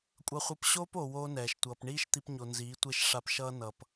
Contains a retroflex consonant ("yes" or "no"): yes